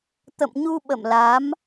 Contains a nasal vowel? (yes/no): no